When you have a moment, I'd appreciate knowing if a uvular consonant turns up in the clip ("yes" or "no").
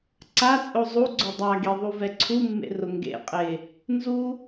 yes